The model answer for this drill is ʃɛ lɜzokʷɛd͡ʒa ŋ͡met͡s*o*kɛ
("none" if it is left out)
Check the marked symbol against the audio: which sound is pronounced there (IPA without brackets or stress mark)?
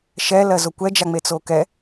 o